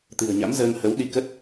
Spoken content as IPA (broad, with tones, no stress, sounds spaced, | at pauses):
t̪ ɨ̤˨˩ ə̯ ɲ a̰˧˥ m z əː˧ ŋ h ə˨˦ w ɗ i˧ k ə˦˥ t̚